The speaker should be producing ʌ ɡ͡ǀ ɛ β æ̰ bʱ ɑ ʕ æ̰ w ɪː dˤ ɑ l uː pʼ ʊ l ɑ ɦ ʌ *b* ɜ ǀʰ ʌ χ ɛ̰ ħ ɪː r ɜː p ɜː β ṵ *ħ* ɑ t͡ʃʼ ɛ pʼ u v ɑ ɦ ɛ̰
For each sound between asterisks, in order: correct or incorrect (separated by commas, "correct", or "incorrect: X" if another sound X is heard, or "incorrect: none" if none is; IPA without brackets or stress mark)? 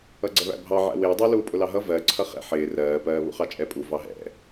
incorrect: v, incorrect: χ